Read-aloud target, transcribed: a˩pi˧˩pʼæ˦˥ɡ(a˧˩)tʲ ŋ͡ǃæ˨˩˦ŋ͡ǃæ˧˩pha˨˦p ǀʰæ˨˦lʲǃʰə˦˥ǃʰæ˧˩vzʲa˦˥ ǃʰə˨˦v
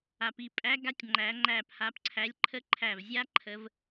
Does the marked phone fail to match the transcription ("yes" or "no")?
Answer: yes